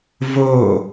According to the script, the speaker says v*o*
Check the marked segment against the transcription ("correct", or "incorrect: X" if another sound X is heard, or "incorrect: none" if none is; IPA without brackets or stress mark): correct